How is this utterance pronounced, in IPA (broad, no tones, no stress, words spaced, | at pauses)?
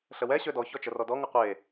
ɬəwɛ ɕødɔ çɔt͡ʃərɔdɔ ŋəqʷe